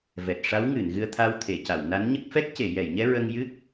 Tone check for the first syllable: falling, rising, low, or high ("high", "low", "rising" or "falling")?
low